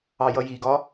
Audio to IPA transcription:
ɑ j ʌ j i ɡ ɒ

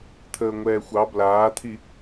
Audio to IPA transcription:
t̪ʰ əː ŋʷ ɛː xʷ ɑ b l aː t̪ʰ i

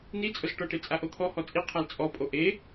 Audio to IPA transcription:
n i t͡sʼ ʊ z ʈ ɔ ʈ e t͡sʼ a ʔ o t̪ʰ ɔ h ɔ t͡sʼ i qʰ a l t͡sʼ ɔ pʼ o ʔ e

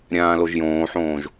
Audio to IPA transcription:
ɾʲ ãː l o ʒ j õː ħ õː ʒ

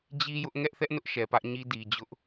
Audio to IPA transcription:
d͡ʑ i˦ j ʊ˦ ʔ ŋ ɛ˦ ʔ θ ɛ˦ ʔ n ʊ˦ ʔ ʃ ɛ˨ p ä˦ ʔ ɲ i˦ d i˨ d͡ʑ ʊ˦ ʔ

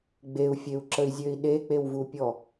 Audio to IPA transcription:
ɡ͡b e u̯ fʲ e u̯ ǁ ə i̯ zʲ ø i̯ ɗ e k͡p e w v u pʲ ɔ

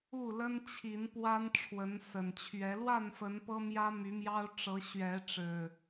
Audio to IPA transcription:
u˥˨ l ə˦ n t͡ɕʰ i˨˦ n p w a˦ n ʈ͡ʂʰ w ə˨˦ n s ə˨˩ n t͡ɕʰ ɥ ɛ˨˦ l w a˥˨ n f ə˨˦ n p ɤ˦ m j ä˦ m y˨˦ m j ɑ˦ ʊ̯ ʈ͡ʂ ɤ˨˦ ɕ ɥ ɛ˨˦ ʈ͡ʂ ɻ̩˨˩

